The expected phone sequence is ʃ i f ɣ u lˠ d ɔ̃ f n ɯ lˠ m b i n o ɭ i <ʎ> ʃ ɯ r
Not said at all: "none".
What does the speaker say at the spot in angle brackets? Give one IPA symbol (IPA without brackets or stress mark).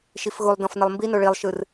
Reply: lˠ